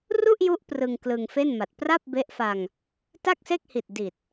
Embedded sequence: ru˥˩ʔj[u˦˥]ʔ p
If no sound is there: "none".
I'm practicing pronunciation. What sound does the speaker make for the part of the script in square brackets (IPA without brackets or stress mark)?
u˦˥